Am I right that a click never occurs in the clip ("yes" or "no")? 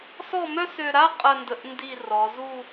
yes